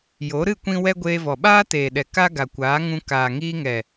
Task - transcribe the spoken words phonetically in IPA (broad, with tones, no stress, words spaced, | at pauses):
jo˨˦ɾɨ˦˨ kʷĩ˧wɛ˧ ɡʷeː˧vɔ˨ɓaː˦ teː˨ɗɛ˨ ka˦ɡa˨kʷaː˨˦ŋũ˧ kaː˨ŋiː˧ŋɛ˨